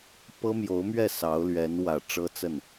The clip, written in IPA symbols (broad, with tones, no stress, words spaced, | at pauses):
pɤ˥mjo˧˥ʊ̯mɥɛ˥˩ sɑ˧˥ʊ̯ lɥɛ˧˥nwä˨˩ ʈ͡ʂɤ˥t͡sə˥˩n